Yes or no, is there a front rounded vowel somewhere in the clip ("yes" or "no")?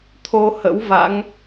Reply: no